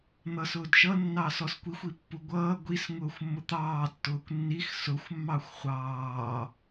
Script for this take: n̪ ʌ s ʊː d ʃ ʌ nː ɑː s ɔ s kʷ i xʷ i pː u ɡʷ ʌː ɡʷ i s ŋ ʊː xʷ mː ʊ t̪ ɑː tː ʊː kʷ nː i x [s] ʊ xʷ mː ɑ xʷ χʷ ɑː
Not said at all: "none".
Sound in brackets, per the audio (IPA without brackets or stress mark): s